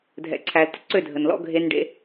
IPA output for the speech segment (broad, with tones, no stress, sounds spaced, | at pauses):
dʱ ɛ̰˨ ǀʰ æ˨ l t ə̰˨ ǀ ø˦˨ dʱ ə˨ n l ɔ̰˦ ɡʱ e˦ n ɖ ḛ˦